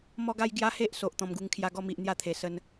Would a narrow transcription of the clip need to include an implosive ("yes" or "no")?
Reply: no